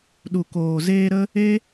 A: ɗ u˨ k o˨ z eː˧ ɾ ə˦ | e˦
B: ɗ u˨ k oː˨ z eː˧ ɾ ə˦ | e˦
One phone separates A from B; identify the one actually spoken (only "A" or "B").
B